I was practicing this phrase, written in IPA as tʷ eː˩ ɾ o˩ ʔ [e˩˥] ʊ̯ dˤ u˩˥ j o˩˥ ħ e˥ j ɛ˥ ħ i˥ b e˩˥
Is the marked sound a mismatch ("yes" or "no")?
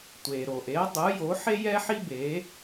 no